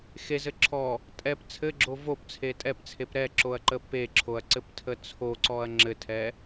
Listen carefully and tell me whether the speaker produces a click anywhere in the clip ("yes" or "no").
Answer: yes